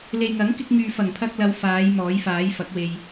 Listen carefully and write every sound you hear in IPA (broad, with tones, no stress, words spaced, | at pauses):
le˨jŋɐ˨˥ŋkɪ˧k̚ŋyː˨ fɐ˨˩ŋpʰɐ˧k̚lɐ˨˧w faː˨˧j mɔː˨˥jfaː˨˥jfɐ˨˥k̚we˧j